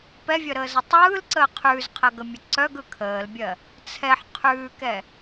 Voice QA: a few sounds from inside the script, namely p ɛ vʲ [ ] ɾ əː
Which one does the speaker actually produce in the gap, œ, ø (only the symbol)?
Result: œ